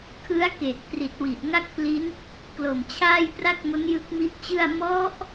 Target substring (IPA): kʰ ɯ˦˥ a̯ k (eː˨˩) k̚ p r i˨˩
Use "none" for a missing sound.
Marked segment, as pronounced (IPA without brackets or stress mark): eː˨˩